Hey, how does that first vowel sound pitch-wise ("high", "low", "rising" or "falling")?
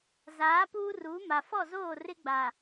rising